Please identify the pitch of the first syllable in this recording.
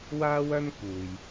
high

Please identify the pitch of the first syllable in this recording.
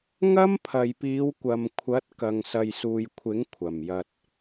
high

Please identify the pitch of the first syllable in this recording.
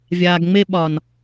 low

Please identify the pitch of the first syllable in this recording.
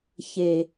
low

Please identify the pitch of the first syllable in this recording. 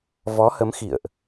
rising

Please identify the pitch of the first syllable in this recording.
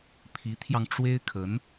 rising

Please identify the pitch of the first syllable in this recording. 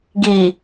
low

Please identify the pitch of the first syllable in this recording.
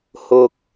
low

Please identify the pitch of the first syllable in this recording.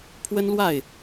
high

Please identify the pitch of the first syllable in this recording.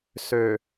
low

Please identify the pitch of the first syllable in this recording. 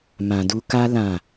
low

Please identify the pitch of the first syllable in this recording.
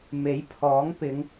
rising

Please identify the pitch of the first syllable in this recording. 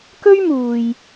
high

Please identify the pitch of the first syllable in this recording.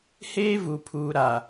high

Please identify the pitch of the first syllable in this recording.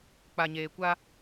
low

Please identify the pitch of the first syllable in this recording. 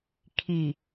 low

